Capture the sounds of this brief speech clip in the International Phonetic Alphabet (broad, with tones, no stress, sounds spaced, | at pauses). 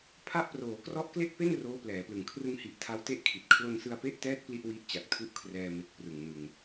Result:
pʰ a˦˥ ʔ p r oː˩˦ k r ɔ˦˥ ʔ k l e˥˩ k̚ p e˥˩ n r oː˦˥ p l ɛː˩˦ p l ɯ˨˩ ŋ kʰ r ɯ˧ ŋ h i˨˩ ʔ tʰ a˦˥ w t e˥˩ ʔ kʰ i˨˩ t̚ kʰ l o˧ n s ɯ˧ a̯ p e˦˥ ʔ t ɛː˦˥ t̚ p l i˦˥ ʔ w i˦˥ ʔ t͡ɕ a˨˩ k̚ tʰ u˥˩ ʔ kʰ r ɛː˧ m e˨˩ k̚ p r ɯ˨˩ ŋ n ɯ˧ ŋ